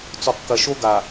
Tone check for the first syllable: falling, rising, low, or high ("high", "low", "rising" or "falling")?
low